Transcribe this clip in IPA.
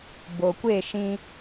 bo˨ kʷe˦˨ʃĩ˧

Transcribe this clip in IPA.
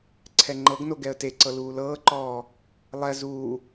ǀʰɛŋ͡ǃɤɡno ɡɛə̯teǀɤ luːlɤːǃɔː | lˠɛ zuː

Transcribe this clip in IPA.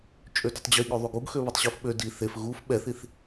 t͡ʃʼødœtˤd͡ʑi ɠøðˤuɡuɡxø βitˤɕufɓø di θef ɣuf ɓɛθiθ

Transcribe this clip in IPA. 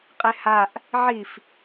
qʼehaʔ | ʕif

